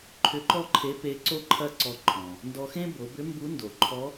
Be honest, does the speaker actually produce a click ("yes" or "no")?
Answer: yes